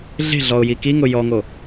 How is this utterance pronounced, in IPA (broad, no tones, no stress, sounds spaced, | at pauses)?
ɮ e̤ ɮ ɔ ʊ̯ j i k i ŋ ʊ j ɔ ŋ o